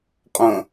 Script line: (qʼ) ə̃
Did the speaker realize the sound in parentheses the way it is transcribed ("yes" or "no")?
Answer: yes